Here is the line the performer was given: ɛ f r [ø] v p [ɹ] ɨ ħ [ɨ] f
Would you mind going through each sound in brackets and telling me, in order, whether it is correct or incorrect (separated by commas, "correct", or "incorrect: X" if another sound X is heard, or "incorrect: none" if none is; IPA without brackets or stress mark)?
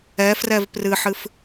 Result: incorrect: ɛ, incorrect: r, correct